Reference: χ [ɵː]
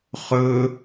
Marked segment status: correct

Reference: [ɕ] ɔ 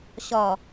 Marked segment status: correct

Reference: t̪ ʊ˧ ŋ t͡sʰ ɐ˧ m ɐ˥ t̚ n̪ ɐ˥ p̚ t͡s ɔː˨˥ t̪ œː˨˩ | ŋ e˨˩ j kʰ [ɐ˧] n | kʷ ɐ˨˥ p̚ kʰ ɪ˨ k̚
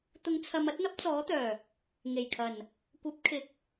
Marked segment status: incorrect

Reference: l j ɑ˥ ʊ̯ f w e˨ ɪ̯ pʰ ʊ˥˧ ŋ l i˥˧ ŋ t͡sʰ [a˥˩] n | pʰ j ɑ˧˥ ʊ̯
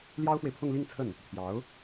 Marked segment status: incorrect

